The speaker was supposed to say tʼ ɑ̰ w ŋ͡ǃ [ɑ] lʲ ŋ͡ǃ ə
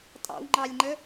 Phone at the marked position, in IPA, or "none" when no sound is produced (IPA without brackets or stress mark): ɑ